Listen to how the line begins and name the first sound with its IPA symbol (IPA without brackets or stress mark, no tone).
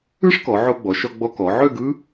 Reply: ɯ